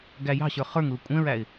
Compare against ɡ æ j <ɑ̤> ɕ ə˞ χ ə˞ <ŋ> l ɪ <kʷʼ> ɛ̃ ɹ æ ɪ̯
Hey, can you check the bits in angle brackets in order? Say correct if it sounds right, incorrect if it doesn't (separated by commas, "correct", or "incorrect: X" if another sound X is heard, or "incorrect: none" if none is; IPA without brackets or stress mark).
correct, correct, correct